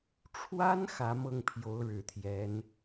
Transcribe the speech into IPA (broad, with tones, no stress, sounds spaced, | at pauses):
ʈ͡ʂʰ w a˥ n x ä˧˥ m ɤ˥˩ ŋ pʰ j o˧˥ ʊ̯ ɻ ɻ̩˨˩ t̪ʰ j ɛ˧˥ n